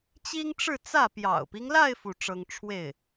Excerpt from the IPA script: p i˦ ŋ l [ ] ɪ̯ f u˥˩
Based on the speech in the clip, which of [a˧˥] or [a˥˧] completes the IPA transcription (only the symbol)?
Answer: a˥˧